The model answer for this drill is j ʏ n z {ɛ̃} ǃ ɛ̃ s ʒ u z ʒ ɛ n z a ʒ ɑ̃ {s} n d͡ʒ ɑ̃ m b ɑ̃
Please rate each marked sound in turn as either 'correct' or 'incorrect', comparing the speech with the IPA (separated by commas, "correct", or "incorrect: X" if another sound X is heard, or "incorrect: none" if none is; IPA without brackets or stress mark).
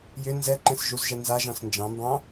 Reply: incorrect: ɛ, correct